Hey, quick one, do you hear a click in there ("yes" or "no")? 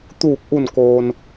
no